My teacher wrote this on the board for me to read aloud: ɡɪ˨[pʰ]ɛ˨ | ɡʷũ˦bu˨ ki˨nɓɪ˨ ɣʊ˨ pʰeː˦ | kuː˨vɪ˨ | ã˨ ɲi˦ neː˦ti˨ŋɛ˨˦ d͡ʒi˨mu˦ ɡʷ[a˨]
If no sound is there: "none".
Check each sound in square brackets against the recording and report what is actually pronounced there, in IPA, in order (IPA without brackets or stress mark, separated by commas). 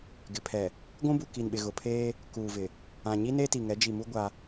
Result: pʰ, a˦